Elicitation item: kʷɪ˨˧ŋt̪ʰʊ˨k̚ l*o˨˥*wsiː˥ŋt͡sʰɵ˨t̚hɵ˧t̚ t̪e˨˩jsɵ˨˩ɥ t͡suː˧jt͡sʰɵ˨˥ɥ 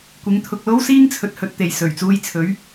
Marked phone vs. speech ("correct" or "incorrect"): incorrect